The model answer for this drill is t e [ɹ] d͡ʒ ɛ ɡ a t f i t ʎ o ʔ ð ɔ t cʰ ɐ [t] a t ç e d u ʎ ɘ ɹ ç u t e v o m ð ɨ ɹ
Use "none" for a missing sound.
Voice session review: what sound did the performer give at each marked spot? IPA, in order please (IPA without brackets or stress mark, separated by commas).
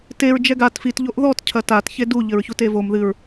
ɹ, t